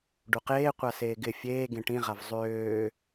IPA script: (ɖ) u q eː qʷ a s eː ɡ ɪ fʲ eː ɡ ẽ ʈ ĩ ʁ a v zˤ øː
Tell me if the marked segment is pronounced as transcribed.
yes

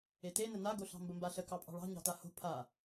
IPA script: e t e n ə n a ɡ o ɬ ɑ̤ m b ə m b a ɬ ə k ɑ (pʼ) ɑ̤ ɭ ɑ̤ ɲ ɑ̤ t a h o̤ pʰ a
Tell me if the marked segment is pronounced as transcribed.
yes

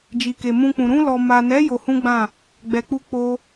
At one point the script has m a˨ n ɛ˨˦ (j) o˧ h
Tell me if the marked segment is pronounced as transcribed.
yes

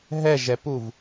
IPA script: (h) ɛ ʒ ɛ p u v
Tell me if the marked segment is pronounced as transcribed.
no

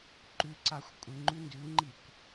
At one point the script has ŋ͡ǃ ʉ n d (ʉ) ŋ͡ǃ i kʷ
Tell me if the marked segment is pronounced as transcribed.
yes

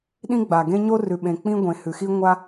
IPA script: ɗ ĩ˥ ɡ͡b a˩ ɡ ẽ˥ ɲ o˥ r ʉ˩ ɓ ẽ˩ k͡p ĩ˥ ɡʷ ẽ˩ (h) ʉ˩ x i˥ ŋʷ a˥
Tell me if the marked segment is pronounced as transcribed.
yes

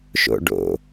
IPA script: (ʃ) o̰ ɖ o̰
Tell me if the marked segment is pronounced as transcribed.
yes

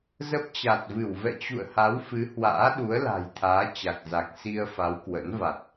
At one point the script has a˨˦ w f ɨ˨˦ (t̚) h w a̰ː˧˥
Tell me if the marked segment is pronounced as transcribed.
no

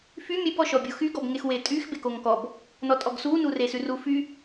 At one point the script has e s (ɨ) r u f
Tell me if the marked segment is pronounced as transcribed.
no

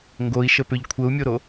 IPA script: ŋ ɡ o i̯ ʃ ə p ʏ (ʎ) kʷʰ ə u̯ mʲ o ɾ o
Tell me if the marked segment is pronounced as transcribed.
yes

